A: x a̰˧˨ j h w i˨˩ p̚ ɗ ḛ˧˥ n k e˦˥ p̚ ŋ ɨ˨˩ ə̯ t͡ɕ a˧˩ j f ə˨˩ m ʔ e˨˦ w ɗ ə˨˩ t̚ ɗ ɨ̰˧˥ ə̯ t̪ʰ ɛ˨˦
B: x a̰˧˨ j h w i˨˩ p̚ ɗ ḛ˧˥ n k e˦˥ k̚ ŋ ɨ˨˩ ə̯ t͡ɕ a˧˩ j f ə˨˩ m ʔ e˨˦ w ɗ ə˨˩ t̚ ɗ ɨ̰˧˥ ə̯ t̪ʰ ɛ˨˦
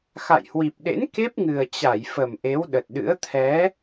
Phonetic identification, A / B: A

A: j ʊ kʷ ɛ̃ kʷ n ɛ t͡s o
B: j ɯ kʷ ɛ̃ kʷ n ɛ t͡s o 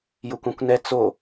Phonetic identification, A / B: A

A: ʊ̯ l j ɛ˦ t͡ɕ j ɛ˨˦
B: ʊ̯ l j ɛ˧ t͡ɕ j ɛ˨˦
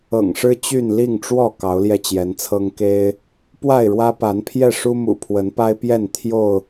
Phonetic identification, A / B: B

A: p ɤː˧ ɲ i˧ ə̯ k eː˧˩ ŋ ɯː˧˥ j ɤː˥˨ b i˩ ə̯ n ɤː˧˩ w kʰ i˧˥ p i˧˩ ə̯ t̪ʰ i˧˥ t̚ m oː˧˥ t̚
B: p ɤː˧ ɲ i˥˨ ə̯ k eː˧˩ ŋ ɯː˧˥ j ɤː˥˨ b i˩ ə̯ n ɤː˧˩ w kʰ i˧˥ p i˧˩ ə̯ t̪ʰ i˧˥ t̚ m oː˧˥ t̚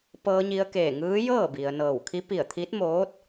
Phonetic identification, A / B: A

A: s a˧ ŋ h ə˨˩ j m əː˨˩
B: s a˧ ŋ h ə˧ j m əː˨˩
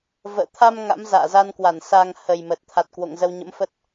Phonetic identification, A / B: A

